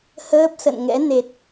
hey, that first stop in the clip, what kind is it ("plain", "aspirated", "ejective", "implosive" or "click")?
plain